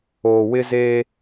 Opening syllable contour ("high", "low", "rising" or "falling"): low